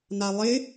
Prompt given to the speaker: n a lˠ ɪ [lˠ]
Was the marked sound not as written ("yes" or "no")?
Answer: yes